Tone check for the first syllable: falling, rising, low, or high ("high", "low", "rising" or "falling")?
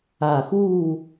low